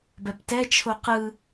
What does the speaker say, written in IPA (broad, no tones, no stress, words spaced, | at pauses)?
bɛptɛt͡ʃʰo qɯ